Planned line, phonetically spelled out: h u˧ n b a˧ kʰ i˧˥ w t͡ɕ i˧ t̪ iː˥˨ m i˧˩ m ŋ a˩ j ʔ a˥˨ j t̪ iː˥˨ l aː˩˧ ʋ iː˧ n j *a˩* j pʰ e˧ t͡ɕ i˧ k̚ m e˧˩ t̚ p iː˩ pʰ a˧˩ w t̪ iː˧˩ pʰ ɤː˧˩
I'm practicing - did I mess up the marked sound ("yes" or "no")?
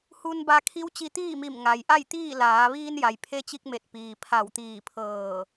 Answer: no